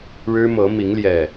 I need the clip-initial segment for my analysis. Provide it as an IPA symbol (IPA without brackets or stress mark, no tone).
ɻ